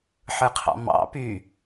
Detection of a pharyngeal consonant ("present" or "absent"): present